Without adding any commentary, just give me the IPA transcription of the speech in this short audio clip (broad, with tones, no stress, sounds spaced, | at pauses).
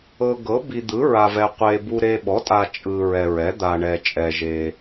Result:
ɤ˨ ɡ ɤ˩˥ b i˨ d̪ ɯ˩˥ ɹ a˨ v ɛ˨ qʷ e˨ b u˨ ɾ e˨ ɓ ɔ˩˥ tʼ a˨ t͡ʃʼ ɯ˨ ɹ ɛ˨ ɹ ɛ˩˥ d̪ a˨ ɳ ɛ˨ t͡ʃʼ ɛ˨ ʒ e˨